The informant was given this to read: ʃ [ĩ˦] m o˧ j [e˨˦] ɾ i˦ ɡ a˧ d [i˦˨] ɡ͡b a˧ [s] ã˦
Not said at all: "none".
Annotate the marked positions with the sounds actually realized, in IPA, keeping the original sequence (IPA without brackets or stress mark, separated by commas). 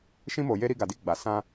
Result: ĩ˦, e˦, i˦, s